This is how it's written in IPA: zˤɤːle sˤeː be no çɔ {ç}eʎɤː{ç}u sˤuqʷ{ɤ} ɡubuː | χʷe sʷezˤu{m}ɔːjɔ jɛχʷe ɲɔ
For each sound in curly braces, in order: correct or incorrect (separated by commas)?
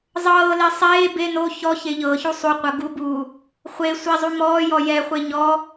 correct, correct, correct, correct